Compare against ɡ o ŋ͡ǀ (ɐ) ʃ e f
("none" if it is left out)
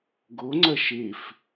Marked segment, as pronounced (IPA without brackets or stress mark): ɐ